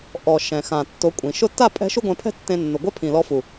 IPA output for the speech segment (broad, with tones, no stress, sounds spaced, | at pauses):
ʔ ɔ˨ ʃ ɛ̃˨ x ã˨ tː o˨˦ kʷʼ ĩ˨ ʃ ʊ˧ tː a˦˨ pʼ ɛ̤˧ ʃ u˦ ɡʷ ɛ̃˧ pʰ ɛ̤˦ tː ẽ˧ nː o˨ ɡʷ ɛ˦ pʰ ĩ˨ l ɔ˧ f u˨